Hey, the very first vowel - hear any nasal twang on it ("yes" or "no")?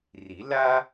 no